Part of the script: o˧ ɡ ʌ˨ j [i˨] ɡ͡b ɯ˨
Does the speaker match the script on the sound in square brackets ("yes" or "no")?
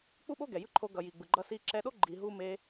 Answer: yes